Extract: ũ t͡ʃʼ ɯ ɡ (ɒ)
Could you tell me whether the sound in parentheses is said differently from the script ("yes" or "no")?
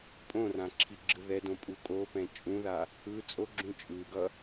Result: yes